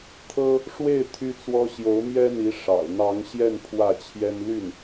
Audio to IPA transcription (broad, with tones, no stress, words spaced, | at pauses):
t̪ʰɤ˥ | ʂwe˥˩ɪ̯ t̪ʰy˥t͡swɔ˥ ɕjo˧˥ʊ̯mjɛ˥n̪i˧˥ ʂɑ̰˨˩ʊ̯ n̪ɑ˧˥ŋɕjɛ˥˧n pʰwä˥˩t͡ɕʰjɛ˥n ly˥˩n